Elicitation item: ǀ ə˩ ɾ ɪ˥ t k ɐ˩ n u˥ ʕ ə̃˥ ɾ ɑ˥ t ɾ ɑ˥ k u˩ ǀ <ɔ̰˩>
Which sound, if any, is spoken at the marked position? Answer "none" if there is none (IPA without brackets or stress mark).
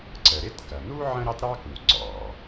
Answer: ɔ̰˩